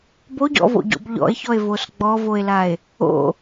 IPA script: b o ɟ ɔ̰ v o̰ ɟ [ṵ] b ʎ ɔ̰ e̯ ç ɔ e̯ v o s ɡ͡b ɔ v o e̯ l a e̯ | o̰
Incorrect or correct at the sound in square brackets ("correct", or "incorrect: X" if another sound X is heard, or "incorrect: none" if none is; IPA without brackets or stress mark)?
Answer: incorrect: o̰